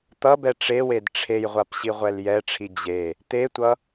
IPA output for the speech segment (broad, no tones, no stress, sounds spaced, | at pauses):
t̪ ʌ b ɛ ʈ͡ʂ e w e d ʈ͡ʂʰ e j ʁʷ a p ɕ i ʁʷ ɛ l j ɛ ʈ͡ʂʰ i d͡ʑ e | t̪ e tʷ ʌ